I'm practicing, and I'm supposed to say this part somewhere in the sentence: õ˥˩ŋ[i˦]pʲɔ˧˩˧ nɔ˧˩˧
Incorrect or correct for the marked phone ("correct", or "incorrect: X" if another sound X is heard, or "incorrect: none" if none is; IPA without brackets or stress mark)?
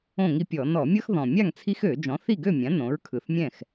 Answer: correct